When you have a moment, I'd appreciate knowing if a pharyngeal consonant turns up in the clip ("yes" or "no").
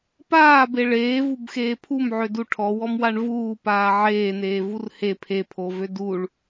yes